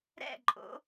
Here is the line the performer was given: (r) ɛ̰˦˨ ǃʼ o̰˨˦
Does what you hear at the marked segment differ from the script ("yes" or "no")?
yes